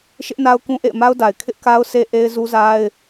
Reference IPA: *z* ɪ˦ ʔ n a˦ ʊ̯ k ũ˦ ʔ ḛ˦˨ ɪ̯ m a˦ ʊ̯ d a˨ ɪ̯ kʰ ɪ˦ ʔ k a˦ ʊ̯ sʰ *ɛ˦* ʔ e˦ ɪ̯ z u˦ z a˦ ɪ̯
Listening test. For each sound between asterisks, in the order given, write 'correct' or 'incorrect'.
incorrect, incorrect

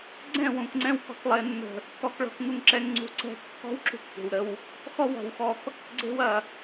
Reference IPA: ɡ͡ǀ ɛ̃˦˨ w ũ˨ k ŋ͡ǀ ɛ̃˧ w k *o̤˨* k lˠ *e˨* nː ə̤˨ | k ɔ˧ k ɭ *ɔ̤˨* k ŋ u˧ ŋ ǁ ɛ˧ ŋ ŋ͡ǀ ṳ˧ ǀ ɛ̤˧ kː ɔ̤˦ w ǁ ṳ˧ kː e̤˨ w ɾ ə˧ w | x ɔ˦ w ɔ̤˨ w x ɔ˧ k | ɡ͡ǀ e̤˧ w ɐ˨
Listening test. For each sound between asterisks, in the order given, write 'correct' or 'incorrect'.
incorrect, correct, incorrect

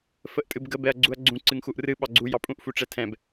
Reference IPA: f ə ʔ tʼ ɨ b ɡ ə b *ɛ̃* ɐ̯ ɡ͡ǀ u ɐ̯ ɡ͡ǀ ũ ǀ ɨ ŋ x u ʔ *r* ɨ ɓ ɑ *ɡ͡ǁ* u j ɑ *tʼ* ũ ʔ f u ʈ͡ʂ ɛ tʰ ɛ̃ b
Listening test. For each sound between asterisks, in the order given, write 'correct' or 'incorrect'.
incorrect, correct, incorrect, incorrect

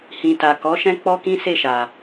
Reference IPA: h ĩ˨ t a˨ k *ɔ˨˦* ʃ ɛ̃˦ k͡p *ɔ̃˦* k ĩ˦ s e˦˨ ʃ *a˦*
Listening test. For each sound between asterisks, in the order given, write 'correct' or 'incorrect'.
correct, incorrect, incorrect

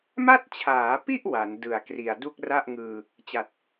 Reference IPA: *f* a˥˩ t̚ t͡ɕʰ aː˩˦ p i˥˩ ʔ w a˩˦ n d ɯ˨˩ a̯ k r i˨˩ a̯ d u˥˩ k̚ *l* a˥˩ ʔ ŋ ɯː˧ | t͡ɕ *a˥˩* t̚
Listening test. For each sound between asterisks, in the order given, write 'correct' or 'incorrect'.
incorrect, incorrect, incorrect

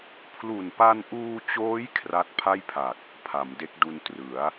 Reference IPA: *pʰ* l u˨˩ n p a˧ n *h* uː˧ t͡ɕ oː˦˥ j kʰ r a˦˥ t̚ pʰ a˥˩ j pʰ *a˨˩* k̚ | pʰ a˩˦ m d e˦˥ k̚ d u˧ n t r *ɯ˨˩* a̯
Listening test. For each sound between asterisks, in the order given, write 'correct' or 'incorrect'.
correct, incorrect, correct, incorrect

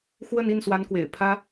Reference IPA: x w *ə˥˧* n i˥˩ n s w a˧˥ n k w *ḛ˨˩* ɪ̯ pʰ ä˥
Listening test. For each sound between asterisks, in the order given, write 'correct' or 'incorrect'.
correct, correct

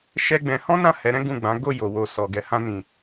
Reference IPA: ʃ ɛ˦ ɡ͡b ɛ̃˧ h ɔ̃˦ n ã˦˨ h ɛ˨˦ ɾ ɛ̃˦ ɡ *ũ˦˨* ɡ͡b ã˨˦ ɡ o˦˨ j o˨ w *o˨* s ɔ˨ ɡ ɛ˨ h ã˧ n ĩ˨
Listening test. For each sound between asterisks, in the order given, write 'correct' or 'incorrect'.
correct, correct

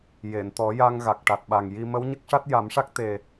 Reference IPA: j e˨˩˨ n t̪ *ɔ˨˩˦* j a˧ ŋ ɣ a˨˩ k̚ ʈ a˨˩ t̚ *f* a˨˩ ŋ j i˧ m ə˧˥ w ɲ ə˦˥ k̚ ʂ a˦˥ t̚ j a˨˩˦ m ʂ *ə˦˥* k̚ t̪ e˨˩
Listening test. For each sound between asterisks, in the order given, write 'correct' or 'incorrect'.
correct, incorrect, incorrect

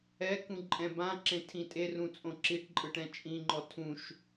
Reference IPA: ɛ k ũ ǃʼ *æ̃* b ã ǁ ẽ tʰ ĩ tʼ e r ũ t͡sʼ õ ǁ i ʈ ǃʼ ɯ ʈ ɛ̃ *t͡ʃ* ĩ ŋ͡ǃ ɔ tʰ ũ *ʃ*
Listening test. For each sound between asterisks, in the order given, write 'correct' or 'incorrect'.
incorrect, incorrect, correct

